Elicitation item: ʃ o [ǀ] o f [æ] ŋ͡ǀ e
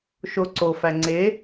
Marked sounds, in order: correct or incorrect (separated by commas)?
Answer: correct, correct